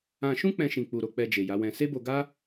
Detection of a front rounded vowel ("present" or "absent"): absent